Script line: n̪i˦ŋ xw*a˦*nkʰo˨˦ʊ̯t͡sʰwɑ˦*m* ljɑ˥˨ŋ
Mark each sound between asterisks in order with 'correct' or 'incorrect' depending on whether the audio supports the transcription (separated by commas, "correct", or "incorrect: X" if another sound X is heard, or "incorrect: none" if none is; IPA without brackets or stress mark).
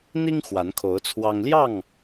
incorrect: a˨˦, incorrect: ŋ